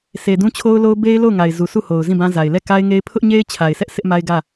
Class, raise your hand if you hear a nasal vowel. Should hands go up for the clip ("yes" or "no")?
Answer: yes